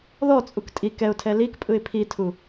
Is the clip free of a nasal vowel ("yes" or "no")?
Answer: yes